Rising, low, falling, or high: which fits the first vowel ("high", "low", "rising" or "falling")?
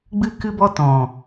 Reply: high